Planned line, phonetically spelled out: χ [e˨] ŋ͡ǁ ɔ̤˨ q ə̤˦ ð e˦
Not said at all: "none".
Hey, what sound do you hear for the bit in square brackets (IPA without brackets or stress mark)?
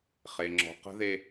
e˨